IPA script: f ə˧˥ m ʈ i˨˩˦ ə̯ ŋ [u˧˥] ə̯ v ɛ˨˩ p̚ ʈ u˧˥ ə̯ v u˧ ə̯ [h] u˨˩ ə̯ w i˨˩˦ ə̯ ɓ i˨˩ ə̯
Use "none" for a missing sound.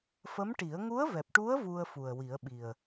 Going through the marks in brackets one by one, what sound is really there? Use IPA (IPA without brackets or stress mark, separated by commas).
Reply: u˧˥, f